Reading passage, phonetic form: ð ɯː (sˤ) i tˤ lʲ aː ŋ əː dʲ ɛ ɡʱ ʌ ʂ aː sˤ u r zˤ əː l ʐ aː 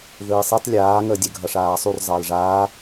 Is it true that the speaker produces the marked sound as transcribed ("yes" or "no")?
yes